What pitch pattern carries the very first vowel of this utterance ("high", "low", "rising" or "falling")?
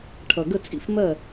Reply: low